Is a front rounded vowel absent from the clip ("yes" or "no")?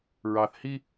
yes